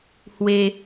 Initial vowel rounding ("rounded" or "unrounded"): unrounded